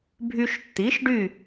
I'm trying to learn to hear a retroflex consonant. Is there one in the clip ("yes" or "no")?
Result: yes